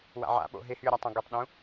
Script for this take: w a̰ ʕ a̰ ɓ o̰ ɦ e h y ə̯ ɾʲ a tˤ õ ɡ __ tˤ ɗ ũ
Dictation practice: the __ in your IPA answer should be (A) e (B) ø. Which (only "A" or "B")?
B